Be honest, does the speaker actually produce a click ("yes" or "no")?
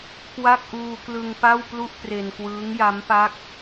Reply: no